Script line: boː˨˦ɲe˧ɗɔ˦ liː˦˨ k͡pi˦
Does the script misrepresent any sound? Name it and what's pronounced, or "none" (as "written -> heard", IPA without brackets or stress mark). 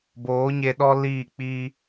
none